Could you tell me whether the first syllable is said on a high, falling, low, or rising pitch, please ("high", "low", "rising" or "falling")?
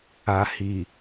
low